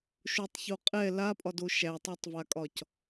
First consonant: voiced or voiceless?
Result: voiceless